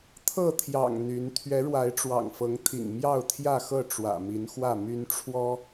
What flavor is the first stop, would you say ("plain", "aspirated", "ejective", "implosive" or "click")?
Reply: aspirated